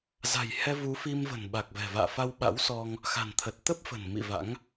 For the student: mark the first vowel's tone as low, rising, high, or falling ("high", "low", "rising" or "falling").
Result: low